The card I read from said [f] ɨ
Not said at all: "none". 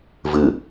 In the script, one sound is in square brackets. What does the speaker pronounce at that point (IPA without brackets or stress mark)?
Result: v